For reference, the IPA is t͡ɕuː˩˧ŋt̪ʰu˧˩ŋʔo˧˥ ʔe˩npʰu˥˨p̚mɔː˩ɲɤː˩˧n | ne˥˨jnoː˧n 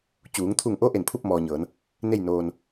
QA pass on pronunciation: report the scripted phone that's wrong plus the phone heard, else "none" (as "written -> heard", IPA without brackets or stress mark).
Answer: none